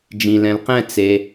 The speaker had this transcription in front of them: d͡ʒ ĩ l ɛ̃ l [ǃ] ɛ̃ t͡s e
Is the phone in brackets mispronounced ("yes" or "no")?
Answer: yes